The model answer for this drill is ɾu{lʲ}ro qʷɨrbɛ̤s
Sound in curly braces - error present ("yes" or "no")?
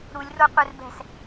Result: no